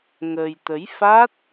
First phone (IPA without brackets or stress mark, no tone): ŋ